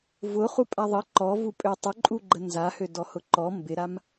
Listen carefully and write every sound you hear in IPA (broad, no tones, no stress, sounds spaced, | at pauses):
v ʊ χ u pʼ a ðˤ ə ǃ ɔ v u pʼ ø tˤ ʊ ǃʼ u ɡ͡ǃ ə n z a h ø d ɔ h ʊ ǃ ɔ m b ɪ ɾ a m